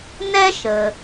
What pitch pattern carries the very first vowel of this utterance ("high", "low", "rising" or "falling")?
high